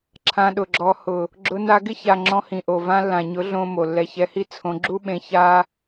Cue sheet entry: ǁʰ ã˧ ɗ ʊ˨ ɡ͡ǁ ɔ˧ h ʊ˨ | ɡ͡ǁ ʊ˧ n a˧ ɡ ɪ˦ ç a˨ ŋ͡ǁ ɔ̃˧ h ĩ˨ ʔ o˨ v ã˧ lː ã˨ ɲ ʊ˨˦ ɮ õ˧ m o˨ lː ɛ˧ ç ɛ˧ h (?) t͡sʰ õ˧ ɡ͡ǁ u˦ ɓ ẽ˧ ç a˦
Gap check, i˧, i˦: i˦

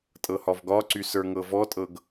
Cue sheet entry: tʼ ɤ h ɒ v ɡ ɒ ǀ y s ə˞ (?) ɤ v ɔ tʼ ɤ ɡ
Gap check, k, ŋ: ŋ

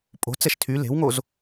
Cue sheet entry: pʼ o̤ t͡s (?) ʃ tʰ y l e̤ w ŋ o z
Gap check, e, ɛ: ɛ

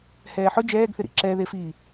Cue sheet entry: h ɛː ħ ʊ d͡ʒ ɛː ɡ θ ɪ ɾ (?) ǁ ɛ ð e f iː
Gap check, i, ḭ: ḭ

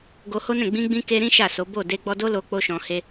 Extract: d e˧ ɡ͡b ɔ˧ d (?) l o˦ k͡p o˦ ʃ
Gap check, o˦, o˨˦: o˦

